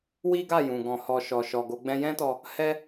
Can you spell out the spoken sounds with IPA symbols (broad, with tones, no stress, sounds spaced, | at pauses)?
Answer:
w i˦ ɡ a˦˨ j ũ˨ ɡ ɔ̃˧ h ɔ˧ ʃ ɔ˧ ʃ ɔ˧ ɡ o˦ ɡ͡b ɛ̃˦ j ɛ̃˦ t ɔ˧ | h ɛ˦